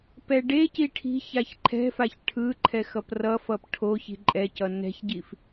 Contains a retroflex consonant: yes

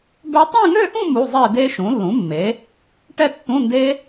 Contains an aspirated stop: no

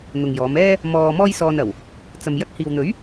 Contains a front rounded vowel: no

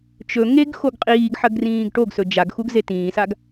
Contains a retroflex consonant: yes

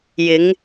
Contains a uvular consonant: no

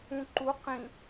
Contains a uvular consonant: yes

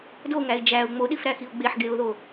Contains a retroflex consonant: no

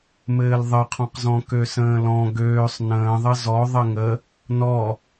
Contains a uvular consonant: yes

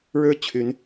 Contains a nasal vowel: no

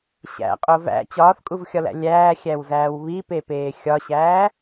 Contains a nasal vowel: no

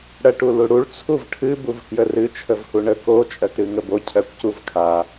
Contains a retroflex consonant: yes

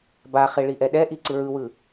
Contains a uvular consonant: yes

